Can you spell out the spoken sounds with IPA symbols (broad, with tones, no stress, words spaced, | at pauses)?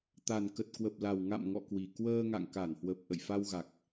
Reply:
t̪a˨˩nkə˨˩t̚ kwə˨˩p̚la˨˩wŋa̰˧˨m ŋɔ̰˧˨ kwi˨˩ kwəː˧ŋa̰˧˨ŋka˧˩nhwə˨˩p̚ ʔə̰˧˨jfa˧wɣa˨˩k̚